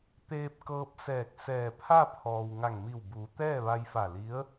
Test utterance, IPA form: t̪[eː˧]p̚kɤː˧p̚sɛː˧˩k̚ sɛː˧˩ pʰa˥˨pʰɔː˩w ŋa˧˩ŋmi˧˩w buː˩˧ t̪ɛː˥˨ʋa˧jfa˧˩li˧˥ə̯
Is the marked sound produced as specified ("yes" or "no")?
yes